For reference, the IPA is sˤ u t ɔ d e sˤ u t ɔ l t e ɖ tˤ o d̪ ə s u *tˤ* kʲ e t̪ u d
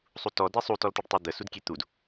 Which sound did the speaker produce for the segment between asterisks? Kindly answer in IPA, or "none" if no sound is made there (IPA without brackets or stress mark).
d